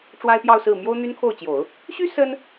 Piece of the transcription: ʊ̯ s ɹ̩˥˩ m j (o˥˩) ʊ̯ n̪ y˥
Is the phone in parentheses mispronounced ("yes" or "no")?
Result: yes